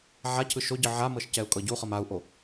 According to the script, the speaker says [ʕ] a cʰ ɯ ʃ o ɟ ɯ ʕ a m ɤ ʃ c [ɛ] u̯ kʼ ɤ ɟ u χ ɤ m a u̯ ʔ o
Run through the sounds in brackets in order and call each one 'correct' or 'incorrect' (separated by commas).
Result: correct, correct